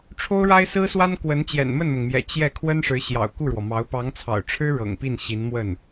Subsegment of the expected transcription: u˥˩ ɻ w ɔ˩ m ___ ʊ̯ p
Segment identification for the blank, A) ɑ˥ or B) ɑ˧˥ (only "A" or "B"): B